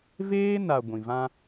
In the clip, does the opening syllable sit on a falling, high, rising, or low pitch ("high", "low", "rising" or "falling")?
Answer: high